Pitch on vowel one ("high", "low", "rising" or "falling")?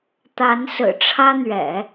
rising